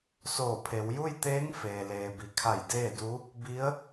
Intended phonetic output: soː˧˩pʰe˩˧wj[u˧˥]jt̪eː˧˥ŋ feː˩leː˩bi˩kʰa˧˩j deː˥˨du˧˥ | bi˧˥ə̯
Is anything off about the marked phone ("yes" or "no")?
yes